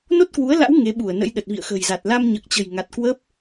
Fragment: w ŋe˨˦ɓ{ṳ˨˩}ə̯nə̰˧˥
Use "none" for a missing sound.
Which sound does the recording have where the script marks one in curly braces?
u˧˩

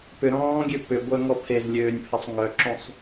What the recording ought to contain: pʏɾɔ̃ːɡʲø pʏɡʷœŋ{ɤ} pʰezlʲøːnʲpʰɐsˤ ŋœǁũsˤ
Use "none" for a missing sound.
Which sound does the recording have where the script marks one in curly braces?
ɔ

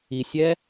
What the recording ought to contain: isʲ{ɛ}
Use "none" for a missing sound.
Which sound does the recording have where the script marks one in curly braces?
ɛ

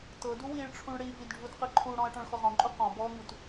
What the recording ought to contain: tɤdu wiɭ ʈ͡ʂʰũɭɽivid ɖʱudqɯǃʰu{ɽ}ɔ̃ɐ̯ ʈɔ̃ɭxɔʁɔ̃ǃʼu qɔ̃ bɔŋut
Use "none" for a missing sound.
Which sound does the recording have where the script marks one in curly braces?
ɽ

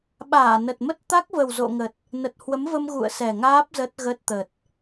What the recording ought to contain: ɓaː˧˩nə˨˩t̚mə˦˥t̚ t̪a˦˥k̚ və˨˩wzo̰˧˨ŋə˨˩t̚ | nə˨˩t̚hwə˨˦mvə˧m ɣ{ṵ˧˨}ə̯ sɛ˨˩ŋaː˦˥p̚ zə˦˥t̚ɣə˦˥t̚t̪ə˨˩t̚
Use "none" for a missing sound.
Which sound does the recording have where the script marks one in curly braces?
ṵ˧˨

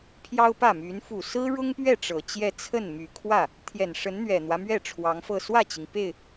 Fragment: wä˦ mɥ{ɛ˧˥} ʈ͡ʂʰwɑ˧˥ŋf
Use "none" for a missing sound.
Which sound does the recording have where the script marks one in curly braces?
ɛ˥˩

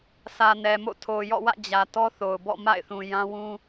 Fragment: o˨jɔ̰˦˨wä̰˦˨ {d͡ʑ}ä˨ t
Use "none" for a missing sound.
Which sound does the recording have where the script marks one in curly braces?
d͡ʑ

